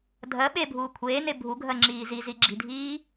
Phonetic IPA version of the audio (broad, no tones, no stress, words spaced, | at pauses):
dʱɜ ɓebʱuː kʷʰeːne bʱuɡʱɜŋ͡ǁiː ziziɡ͡ǁi̤dʱiː